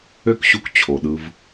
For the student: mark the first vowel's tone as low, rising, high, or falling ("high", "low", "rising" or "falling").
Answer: high